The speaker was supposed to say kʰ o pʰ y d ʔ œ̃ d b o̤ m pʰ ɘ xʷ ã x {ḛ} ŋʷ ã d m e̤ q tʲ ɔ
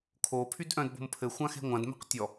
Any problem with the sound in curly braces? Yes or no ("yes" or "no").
yes